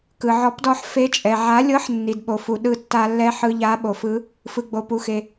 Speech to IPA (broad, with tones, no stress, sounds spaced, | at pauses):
k ɯ˩ ʕ ɔ˨˥ p d ɔ˧ ħ f e˧ t͡ʃʼ ɛ˩ ʕ a˨˥ lʲ ɤ˨˥ ħ nː i˩ d ɓ o˩ f u˩ ɗ ɯ˧ tː a˧ lː ɛ˧ ħ ɯ˧ ʎ a˨˥ ɓ o˩ f ɯ˨˥ | f ɯ˩ ɡ͡b o˩ p u˩ x e˩